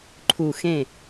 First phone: ǃʰ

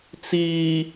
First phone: t͡s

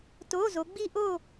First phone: t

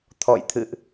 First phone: t̪ʰ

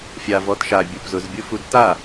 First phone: fʲ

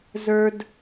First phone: z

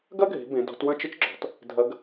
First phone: ɡ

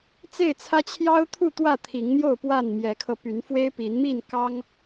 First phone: t͡s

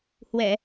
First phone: h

